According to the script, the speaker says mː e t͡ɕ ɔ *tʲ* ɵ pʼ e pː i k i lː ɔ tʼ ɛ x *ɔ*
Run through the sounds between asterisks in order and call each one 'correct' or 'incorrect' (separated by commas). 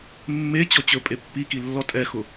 incorrect, incorrect